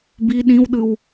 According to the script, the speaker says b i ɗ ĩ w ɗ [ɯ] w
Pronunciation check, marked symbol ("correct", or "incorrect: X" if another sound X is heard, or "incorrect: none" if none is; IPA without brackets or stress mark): correct